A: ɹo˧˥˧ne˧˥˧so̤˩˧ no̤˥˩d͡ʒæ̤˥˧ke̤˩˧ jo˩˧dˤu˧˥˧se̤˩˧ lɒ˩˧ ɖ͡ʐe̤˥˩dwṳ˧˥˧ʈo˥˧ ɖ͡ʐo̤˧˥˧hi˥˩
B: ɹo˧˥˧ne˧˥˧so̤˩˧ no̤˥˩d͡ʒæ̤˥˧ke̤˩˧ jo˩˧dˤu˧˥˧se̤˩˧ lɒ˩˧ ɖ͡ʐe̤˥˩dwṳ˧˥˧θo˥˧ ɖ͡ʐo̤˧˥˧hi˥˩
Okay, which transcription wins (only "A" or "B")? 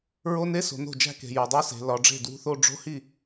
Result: B